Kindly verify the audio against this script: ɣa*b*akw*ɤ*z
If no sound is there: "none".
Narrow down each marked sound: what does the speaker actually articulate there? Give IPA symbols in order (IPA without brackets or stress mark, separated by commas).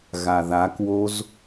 ð, o